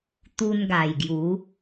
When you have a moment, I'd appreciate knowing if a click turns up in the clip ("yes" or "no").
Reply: no